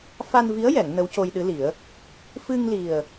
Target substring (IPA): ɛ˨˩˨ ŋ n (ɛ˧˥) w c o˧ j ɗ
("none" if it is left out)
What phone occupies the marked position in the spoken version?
ə˧˥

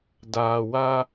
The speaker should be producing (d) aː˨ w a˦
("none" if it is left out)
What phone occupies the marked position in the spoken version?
d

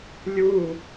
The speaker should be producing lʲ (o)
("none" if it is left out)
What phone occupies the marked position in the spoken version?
u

